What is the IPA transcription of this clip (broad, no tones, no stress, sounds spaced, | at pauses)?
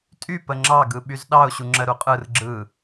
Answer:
tʼ y p ə ŋ͡ǁ ɑ ɡ ɯ ɓ y z ɗ ɑ ʊ̯ ɕ u ŋ͡ǁ ə ɾ u qʼ ɯ r ɡ͡ǁ ɯ